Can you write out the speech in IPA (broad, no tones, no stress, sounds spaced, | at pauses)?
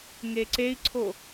ŋ e ǀ e i̯ ǀʰ o